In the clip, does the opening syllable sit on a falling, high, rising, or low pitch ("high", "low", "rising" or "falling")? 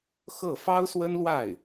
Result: falling